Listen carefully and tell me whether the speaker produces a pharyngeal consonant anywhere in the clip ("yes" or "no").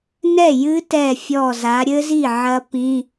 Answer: yes